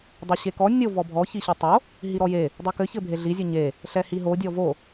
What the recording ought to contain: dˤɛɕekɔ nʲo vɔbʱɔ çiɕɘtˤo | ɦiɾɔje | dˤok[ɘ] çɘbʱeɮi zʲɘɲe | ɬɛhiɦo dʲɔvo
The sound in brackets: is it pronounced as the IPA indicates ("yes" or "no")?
yes